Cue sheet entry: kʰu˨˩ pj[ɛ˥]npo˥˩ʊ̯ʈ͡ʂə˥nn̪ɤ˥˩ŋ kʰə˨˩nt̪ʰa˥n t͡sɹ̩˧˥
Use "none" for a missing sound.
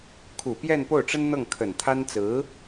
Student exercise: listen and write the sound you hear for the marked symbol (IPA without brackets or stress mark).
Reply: ɛ˥˧